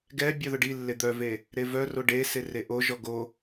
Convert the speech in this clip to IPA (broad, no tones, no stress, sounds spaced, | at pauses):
ɡ ɛ bʲ œ ð ɵ ɖ i lː e d̪ œ v e | ɾ e v œ r o ɖ e s e r e ʔ o ʒ ɔ ɡ o